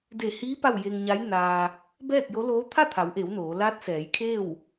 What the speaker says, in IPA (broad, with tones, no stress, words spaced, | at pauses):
de˧˩hiː˧˥ pa˥˨w je˧ŋɲa˧˥j naː˧ | bɛː˥˨k̚jo˧˥ loː˧˥ t̪ʰa˥˨ t̪ʰa˩˧wʔe˩˧w noː˩˧ laː˧˥t̚sɛː˩˧jkʰeː˥˨w